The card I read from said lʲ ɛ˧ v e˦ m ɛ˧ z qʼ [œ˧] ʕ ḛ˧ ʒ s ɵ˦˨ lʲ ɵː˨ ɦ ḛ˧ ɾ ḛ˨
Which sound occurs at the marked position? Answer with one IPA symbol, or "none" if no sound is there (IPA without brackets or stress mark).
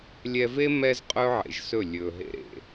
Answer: ɵ˧